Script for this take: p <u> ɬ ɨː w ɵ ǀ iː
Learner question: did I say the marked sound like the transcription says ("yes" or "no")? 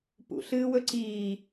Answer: no